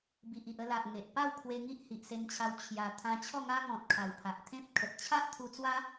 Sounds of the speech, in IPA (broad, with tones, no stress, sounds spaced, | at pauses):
b i˨ ʔ i˨ ʔ ə˧ l a˨ ʔ ŋ e˨ ʔ p a˥˧ w kʰ w e˧ ŋ i˦ ʔ h i˨ ʔ s e˧ n t͡ɕʰ a˧ w t͡ɕʰ j a˧ t̪ʰ ã˧ t͡ɕʰ ɔ˥˧ ŋ a˦ ŋ ɔ̃˨ t̚ kʰ a˨˩ w pʰ a˨ ʔ t̪ʰ ẽ˦ p̚ kʰ ə˨ t̚ t͡ɕʰ a˦ ʔ t̪ʰ u˧ t͡s w a˦